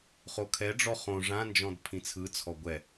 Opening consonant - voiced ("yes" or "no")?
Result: no